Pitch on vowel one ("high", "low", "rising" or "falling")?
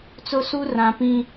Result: high